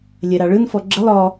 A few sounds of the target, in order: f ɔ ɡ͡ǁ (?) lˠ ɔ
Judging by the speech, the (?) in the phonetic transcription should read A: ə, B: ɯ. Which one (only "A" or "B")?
A